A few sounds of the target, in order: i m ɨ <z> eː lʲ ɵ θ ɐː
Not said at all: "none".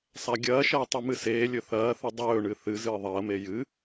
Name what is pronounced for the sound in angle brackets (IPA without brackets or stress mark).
s